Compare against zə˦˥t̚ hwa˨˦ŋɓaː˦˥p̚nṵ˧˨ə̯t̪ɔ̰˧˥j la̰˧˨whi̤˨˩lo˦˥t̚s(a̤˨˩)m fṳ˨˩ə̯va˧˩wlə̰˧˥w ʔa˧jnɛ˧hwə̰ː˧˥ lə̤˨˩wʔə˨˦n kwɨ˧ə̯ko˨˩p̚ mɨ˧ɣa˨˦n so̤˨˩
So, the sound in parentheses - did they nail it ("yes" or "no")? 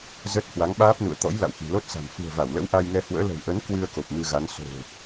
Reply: yes